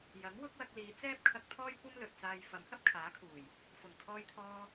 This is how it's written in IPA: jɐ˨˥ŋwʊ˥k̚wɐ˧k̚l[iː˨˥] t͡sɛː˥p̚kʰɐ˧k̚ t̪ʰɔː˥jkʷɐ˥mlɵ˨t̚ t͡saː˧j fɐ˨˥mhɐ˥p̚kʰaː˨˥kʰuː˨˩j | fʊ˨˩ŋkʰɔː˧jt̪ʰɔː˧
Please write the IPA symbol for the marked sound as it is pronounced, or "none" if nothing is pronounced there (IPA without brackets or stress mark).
iː˨˧